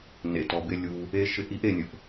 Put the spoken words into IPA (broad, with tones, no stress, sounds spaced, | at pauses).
n ḛ˨ t ɔ˨ b ɪ˧ lʲ u˧ | e˧ ʃ ɪ˧ ʔ i˦ ʔ e˧ nʲ ʊ˨ ʔ